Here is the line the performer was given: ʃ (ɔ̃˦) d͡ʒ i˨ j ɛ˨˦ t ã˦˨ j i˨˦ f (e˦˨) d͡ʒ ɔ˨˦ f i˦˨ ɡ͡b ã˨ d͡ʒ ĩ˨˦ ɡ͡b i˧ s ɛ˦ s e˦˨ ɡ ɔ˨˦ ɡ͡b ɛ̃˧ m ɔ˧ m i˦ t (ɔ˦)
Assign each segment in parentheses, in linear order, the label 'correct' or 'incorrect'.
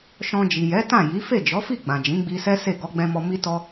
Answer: incorrect, correct, correct

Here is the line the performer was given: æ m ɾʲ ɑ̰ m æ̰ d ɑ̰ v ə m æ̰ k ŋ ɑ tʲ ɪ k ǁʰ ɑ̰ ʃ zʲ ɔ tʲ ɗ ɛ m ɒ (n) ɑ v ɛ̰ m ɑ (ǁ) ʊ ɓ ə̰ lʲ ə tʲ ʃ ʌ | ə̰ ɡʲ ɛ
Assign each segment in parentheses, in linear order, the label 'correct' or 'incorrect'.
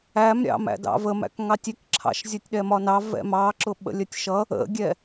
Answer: correct, correct

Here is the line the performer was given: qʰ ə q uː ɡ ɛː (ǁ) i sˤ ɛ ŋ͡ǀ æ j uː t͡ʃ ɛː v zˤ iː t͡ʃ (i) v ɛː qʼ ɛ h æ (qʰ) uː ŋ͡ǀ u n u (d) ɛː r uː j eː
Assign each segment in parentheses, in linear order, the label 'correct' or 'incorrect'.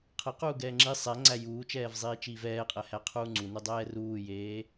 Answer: incorrect, incorrect, correct, incorrect

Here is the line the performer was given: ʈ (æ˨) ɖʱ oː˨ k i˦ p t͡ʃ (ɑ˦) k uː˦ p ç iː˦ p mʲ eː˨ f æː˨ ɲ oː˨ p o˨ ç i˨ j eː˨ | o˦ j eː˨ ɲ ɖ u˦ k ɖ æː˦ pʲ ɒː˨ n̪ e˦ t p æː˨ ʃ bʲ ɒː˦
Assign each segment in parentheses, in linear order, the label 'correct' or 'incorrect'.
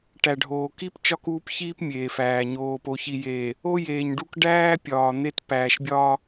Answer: correct, incorrect

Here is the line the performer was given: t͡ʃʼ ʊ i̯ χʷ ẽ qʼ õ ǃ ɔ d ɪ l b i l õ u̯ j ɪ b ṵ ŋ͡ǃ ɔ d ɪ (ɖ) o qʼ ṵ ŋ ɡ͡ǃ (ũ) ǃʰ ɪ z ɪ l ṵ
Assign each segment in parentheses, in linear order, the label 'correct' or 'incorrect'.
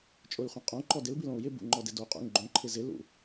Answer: incorrect, incorrect

